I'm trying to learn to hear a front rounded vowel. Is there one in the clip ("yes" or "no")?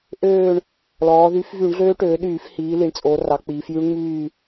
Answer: yes